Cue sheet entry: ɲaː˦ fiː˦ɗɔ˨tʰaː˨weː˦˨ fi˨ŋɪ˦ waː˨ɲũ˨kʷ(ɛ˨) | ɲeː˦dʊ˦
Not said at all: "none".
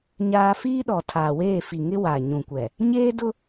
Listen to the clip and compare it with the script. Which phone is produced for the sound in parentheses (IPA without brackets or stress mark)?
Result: ɛ˨